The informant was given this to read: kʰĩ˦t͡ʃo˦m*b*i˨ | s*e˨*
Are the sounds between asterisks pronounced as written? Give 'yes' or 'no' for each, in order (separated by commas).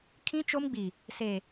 no, yes